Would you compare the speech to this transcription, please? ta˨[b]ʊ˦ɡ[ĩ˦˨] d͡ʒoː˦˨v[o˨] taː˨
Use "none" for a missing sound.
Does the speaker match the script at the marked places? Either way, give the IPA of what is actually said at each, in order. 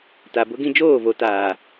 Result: b, ĩ˦, o˨

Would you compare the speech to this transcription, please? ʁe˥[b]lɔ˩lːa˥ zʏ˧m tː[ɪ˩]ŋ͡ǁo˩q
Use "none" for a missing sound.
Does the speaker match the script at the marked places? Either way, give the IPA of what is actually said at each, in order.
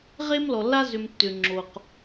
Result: m, ʏ˩

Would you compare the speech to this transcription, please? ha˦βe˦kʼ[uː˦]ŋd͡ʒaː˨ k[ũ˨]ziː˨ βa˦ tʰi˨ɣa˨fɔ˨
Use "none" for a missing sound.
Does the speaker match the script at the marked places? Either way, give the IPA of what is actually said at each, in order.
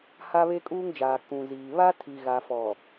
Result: uː˦, ũ˨

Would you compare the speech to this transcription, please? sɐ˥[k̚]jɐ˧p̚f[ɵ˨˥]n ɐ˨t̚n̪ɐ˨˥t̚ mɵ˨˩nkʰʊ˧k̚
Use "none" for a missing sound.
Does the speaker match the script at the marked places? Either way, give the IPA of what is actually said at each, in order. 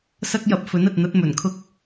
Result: k̚, ɵ˨˥

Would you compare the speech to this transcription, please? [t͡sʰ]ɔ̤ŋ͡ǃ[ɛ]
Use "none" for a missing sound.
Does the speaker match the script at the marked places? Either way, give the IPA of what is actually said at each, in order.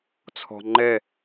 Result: t͡sʰ, ɛ

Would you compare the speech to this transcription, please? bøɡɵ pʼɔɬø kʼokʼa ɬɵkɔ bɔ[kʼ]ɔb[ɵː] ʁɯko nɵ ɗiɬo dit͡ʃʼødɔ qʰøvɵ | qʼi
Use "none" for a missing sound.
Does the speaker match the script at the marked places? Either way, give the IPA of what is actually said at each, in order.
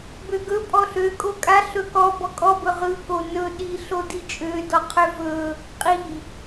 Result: kʼ, ɵ

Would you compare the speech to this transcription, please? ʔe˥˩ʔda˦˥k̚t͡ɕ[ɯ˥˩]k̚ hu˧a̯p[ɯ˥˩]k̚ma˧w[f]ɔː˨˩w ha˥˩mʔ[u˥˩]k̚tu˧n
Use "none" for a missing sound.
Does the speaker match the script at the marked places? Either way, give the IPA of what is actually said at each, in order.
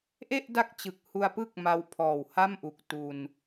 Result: ɯ˨˩, ɯ˥˩, pʰ, u˨˩

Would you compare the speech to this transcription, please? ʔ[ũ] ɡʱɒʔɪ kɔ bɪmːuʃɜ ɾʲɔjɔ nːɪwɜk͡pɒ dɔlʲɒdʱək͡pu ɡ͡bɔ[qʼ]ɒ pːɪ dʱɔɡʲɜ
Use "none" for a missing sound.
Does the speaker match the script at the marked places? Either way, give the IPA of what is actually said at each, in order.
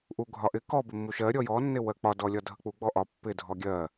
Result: u, ʔ

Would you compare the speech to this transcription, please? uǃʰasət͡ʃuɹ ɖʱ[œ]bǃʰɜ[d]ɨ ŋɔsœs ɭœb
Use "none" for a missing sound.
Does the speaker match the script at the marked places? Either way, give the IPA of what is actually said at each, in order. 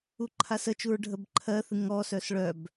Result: ə, θ

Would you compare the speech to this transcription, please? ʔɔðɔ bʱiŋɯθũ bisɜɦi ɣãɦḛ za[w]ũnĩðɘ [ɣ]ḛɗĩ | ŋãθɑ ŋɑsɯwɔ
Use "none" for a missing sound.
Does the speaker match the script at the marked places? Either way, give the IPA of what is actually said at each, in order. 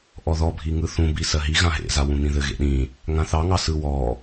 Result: w, ɣ

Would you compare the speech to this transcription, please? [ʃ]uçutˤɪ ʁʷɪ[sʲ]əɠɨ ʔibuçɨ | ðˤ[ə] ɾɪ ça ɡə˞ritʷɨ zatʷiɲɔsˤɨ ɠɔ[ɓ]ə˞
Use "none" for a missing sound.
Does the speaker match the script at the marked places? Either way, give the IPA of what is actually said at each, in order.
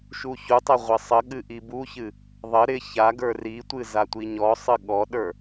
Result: ʃ, sˤ, ə, ɗ

